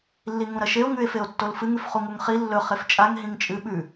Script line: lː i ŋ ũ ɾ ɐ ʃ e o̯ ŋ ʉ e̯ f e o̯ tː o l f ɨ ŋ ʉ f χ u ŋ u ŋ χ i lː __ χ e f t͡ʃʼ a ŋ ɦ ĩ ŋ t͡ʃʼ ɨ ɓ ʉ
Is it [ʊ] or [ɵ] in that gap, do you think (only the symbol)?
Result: ɵ